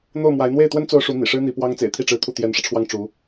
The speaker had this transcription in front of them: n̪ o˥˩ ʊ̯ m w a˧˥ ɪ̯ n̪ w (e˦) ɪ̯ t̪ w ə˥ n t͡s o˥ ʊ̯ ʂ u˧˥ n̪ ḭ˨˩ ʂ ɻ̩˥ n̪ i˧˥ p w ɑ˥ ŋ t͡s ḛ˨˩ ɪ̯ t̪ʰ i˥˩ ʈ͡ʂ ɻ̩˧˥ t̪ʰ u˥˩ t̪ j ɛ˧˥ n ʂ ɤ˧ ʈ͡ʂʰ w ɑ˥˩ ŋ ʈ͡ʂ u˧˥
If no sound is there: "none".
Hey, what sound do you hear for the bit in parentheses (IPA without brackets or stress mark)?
e˥˩